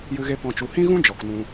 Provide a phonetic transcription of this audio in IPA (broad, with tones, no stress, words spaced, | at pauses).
jɨ˧ɣe˧ pɔ̃˨t͡ʃu˨hĩ˦ɣũ˦ d͡ʒɔ˨knũ˧